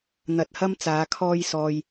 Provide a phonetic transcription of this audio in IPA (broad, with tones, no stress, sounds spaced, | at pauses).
n̪ ɐ˧ t̚ h ɐ˥ m t͡s aː˨˧ kʰ ɔː˧ j s ɔː˨ j